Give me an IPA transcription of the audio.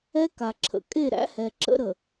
ɛ˦ka˨ǁʰə̰˨ kʼe˦˨ɾæ̰˦hɛ˨ǁə̰˦ ɾə˨

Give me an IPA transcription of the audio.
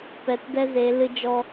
pɛ˨tdɛ˦ze˨˦ lɨ˦d͡ʒɔ˦

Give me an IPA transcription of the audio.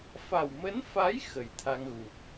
fa˨˩wmə˨˦nfa˨˦j xə˨˩jt̪ʰa˧ŋɣu˨˩k̚

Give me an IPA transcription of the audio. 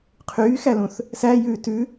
qʰyːxælũθ | sæ jʉːtʉ

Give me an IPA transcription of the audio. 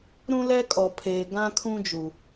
ɾũ˦lɛ˦kʼɔ˨pʰeː˨ ɡã˦kʰũ˦d͡ʒu˨

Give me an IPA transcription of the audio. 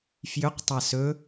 fjʏq tˤasɵ

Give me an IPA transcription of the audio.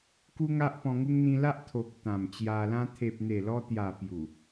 ku˦ŋa˦ʔpɔ̃˧ŋu˦ŋ n̪ĩ˧la˦ʔ t̪ʰo˨k̚ t̪ã˨˩mt͡ɕja˧lã˦ t̪ʰe˨p̚n̪e˨˩lɔ˧t̪ja˨˩ pju˨˩

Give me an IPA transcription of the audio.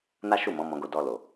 na˦ʃu˦˨mɔ̃˨˦ mɔ̃˧ɡo˧ dɔ˨ lo˨

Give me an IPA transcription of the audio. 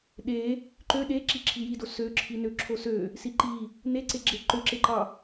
ɗe | ǃø ɗe ǁiǁʰijido søǁʰi nøǁʰosø | siǃi | neǀe ɡ͡ǁeǃøǁeǃɑ

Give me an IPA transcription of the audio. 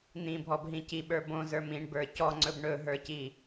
n̪ĩbʱɔbɦĩ ciɓə˞ bõzə˞m ĩɳbə˞ cɔŋ͡ǀɵb ɳɵɦə˞ci

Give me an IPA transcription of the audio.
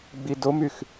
ɡ͡bidomyx

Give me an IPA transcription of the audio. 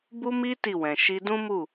bu˦mi˦ ti˦˨wɛ̃˨ ʃi˧dũ˦mu˦˨

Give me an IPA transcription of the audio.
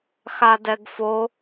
xadɛɡfo

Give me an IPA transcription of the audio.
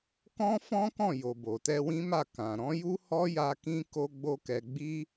kɔ̃˦fɔ̃˦kɔ̃˦˨ jo˨bo˨tɛ˧ wĩ˦ma˦˨ kã˨ɾɔ̃˨˦ju˦ hɔ˦ja˧ kĩ˦ ko˦ɡ͡bo˦kɛ˧ ɡ͡bi˦

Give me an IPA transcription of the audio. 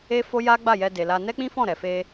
e˦fo˦ja˦ ɡ͡ba˦˨jɛ˧de˨la˧ nɛ˦k͡pĩ˦fɔ̃˦˨ ɾɛ˨fe˧

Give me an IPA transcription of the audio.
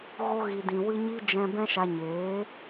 ɣo˧ɣi˨dĩ˨ wɨ˧ɲi˧ d͡ʒɛ̃˧ bɛ̃˦ʃa˧ɲeː˨˦

